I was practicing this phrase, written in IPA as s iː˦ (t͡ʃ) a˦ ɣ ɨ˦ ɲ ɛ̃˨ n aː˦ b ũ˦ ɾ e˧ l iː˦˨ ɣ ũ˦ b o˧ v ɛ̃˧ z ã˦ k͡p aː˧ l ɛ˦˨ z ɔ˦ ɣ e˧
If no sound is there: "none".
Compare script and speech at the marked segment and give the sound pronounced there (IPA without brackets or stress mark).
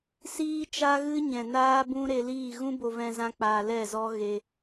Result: t͡ʃ